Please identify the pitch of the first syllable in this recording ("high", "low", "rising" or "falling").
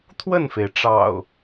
falling